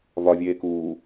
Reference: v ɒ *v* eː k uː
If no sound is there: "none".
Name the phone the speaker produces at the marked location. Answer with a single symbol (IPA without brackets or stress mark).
vʲ